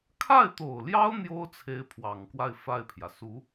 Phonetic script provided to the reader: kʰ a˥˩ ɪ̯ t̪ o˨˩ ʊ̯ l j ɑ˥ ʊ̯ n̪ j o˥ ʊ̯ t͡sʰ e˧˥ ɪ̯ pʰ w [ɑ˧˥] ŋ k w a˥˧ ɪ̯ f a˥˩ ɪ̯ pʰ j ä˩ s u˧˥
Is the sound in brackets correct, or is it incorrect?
incorrect